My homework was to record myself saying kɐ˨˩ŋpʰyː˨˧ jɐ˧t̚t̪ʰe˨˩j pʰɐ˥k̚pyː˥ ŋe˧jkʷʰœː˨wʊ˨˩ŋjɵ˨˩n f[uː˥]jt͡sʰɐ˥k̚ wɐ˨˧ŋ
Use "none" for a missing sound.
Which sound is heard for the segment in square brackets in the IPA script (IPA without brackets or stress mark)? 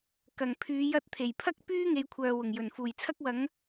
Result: uː˨˩